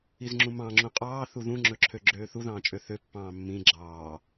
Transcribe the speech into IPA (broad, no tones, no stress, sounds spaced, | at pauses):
i z ŋ͡ǁ ũ m ɑ̃ ŋ͡ǁ ũ qʼ ɑː θ u ð ũ ŋ͡ǁ ɵ ǁʰ ø ɡ͡ǁ øː θ u ð ɑ̃ː t͡ʃʼ ø θ ø pː ɑ̃ː mː ĩ ɡ͡ǁ ɑː